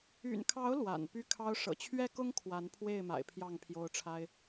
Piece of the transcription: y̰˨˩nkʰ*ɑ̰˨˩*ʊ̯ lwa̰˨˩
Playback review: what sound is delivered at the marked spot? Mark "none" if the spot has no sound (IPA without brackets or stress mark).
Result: ɑ˨˦